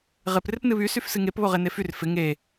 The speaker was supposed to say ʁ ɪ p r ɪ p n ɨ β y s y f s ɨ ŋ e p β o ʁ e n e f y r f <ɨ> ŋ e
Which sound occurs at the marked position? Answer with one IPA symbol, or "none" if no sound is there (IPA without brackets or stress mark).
ɪ